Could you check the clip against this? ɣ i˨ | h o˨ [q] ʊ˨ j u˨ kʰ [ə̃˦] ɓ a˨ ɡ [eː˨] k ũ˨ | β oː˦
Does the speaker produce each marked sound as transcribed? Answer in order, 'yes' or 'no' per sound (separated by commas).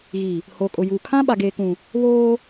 no, no, yes